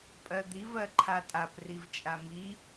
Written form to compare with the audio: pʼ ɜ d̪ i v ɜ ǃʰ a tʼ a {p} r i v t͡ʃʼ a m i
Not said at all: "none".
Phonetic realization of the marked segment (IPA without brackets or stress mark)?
p